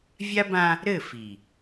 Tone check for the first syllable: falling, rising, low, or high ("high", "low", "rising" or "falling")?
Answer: high